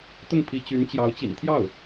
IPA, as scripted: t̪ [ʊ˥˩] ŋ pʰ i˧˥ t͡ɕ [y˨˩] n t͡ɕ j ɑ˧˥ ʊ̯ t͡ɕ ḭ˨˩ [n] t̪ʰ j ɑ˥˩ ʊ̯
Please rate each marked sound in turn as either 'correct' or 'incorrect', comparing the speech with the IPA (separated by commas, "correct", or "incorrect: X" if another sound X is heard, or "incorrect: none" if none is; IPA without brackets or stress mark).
correct, incorrect: y˧˥, correct